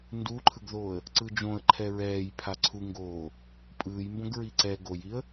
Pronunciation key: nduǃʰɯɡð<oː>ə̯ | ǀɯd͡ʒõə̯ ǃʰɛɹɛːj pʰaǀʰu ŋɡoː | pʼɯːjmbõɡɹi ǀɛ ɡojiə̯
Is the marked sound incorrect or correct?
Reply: correct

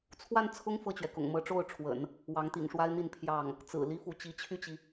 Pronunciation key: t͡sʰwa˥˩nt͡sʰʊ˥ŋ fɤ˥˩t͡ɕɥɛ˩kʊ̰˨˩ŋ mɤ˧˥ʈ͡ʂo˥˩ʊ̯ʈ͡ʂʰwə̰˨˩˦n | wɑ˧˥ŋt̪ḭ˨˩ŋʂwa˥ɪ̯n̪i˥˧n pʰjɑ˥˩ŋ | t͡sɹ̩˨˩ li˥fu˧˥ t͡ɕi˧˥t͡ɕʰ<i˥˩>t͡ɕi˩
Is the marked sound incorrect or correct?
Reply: incorrect: y˥˩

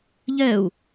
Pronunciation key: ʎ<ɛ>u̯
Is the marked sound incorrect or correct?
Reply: correct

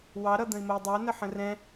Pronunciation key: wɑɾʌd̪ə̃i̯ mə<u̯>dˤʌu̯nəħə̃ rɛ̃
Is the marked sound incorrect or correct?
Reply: incorrect: i̯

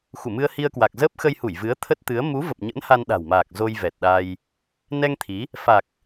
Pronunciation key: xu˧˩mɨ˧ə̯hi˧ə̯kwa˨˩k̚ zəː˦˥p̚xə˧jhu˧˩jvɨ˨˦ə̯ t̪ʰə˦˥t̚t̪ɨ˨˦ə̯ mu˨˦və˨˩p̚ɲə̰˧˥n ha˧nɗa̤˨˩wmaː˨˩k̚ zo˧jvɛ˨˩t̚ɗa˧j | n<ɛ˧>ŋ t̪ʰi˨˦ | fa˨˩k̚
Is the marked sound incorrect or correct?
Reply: correct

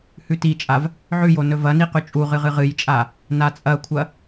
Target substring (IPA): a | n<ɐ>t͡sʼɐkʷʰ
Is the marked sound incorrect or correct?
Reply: incorrect: a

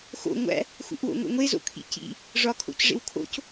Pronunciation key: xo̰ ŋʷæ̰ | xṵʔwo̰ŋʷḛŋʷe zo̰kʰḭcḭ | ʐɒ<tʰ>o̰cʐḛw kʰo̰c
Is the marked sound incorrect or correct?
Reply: incorrect: kʰ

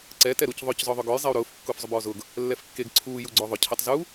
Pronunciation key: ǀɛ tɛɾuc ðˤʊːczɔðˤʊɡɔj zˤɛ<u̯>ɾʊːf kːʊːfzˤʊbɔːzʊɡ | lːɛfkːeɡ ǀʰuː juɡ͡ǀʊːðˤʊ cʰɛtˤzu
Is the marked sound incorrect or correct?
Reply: correct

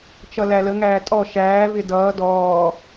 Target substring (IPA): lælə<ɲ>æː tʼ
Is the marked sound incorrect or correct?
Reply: incorrect: ŋ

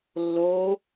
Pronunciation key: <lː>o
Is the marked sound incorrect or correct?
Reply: correct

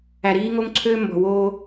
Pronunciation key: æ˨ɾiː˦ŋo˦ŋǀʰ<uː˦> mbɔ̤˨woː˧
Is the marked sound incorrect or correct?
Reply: incorrect: øː˦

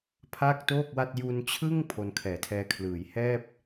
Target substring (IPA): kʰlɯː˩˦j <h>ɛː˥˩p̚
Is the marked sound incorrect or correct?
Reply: correct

